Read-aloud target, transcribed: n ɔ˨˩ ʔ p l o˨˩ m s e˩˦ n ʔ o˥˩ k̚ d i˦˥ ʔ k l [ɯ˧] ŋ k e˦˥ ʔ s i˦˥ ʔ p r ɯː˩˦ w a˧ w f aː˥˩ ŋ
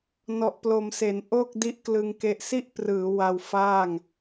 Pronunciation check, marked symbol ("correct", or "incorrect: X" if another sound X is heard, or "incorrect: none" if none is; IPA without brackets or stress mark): correct